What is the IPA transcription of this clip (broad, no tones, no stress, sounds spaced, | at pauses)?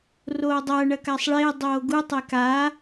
r oː dˤ ɐ ɳ ɐ k a sˤ ɭ e dˤ oː ɡ u tˤ e k a